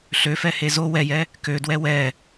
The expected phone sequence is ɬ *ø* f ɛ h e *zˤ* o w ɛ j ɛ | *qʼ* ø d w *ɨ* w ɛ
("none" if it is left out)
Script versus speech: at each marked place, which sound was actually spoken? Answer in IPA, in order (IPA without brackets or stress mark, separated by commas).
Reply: ø, z, k, ɛ